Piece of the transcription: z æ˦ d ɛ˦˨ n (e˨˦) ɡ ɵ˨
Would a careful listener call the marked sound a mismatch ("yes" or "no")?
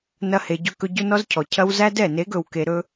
no